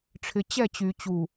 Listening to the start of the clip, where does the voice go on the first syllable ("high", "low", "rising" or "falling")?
low